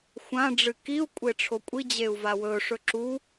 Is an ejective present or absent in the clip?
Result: present